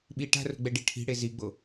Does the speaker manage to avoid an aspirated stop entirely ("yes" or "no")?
no